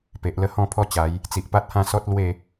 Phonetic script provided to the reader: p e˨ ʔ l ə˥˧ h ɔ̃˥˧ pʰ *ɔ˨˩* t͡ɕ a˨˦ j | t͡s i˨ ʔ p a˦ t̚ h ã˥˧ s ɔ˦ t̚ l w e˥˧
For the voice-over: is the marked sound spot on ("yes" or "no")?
no